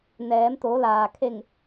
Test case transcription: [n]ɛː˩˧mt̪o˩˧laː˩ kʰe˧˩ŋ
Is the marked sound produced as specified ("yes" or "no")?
yes